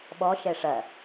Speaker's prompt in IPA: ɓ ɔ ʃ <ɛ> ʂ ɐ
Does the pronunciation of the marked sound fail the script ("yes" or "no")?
no